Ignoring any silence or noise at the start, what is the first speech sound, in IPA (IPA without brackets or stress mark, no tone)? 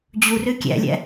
d͡ʑ